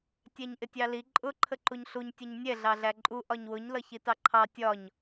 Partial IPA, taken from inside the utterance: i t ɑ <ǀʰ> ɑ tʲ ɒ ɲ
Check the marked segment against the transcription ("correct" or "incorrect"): incorrect